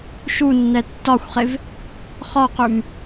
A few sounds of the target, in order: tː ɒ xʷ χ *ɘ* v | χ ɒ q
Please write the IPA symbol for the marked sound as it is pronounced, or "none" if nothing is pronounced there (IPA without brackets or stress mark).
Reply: e